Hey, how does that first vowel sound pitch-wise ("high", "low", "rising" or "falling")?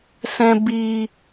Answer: low